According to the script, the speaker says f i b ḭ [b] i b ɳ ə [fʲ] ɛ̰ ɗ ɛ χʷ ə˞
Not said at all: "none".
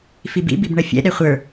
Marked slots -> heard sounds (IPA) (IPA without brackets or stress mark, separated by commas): b, fʲ